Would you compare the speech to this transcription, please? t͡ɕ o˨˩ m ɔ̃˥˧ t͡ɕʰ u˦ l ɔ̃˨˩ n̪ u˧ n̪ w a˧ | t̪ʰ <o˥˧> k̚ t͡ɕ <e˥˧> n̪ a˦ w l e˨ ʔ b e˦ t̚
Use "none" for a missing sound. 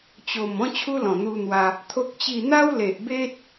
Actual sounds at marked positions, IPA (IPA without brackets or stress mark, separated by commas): o˦, i˥˧